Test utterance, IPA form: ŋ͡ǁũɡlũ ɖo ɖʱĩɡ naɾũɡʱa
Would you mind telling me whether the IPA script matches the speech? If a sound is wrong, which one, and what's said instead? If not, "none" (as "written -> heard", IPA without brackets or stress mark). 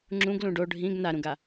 ɡʱ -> ɡ